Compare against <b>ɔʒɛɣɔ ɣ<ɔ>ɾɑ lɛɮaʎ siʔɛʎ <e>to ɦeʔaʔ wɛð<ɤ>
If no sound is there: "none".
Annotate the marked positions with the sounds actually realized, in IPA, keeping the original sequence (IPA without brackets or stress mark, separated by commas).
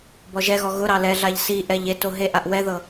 b, ʊ, e, ɤ